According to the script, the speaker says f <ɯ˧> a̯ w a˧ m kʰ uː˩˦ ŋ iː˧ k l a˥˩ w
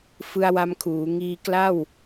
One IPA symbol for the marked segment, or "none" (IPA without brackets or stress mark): ɯ˧